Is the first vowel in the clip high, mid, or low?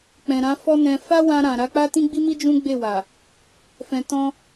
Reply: mid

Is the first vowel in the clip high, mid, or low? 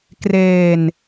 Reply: mid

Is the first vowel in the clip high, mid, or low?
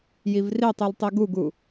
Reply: high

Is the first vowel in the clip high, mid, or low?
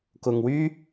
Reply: high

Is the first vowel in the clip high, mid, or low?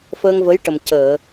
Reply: mid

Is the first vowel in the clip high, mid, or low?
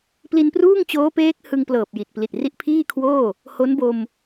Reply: high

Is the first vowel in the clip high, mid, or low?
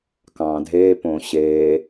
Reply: low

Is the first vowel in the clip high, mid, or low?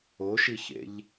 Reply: mid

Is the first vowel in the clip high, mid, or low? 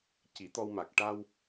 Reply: high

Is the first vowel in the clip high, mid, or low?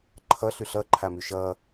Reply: mid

